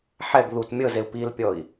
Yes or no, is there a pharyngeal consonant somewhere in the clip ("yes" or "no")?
yes